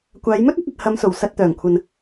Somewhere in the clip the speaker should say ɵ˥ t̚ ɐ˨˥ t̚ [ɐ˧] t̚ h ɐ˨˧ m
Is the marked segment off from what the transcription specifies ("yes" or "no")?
no